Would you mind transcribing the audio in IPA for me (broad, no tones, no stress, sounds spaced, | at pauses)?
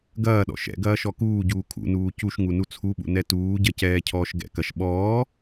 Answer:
ɡ ɐː ɗ ɔ̰ ʃ ɛ̰ ɡ ɐː ʃ ɔ k uː ɟ uː kʰ ṵ n uː c u ʃ ŋ u n u t͡sʰ u ɓ ṵ n ɛ t uː ɟ ɐ c ɛː cʰ ɔː ʃ ɡ ɛ̰ k ɐ ʃ ɓ ɔː